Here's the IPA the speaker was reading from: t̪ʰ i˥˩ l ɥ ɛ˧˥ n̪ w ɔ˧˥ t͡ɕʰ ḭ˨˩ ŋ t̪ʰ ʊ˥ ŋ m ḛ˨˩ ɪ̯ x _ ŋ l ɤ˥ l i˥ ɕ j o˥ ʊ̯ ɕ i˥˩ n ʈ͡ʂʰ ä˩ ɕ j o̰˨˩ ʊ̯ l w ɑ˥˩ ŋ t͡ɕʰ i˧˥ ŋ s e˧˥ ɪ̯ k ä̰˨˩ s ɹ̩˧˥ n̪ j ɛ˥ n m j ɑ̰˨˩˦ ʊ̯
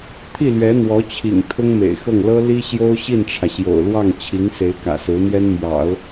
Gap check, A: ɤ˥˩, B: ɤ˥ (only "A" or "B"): A